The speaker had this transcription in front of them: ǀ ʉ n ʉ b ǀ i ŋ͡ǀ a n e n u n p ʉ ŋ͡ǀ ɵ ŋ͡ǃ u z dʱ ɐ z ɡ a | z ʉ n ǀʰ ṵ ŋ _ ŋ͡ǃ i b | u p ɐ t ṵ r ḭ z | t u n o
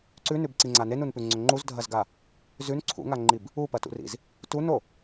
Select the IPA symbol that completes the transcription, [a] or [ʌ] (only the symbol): a